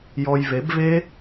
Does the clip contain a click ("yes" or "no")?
no